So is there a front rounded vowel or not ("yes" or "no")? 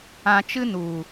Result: no